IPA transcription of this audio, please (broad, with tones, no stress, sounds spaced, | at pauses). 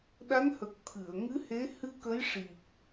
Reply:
ɗ a˧˥ n h ə˨˩ k̚ t̪ʰ ɨ˨˩˨ ə̯ ŋ ɨ˧˥ h e˧˥ h ɨ˧ k ə˧˥ j ʂ i˨˩ k̚